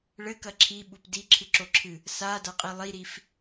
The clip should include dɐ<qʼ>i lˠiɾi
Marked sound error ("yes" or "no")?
no